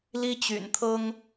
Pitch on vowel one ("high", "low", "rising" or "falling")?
high